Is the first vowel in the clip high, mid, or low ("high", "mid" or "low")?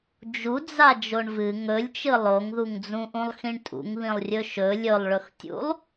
high